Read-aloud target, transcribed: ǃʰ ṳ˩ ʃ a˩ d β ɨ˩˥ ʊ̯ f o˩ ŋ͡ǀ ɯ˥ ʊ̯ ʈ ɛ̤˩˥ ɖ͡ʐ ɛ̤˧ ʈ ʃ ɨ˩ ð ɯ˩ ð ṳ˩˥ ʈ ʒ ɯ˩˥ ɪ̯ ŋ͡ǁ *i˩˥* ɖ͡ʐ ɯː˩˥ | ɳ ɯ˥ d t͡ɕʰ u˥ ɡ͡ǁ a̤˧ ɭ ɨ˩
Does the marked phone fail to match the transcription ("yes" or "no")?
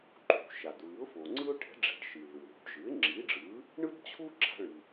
no